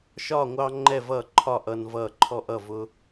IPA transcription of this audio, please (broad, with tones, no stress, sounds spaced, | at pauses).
ʃ ɒː˥˨ ŋʷ ɑ˦ ŋ͡ǃ ɛ˥˨ v ʌː˥˨ ǃʰ ɒ˥˨ ʔ ʌː˦ n v ʌː˥˨ ǃʰ ɔ˦ ʔ ʌ˥˨ v ʊ˦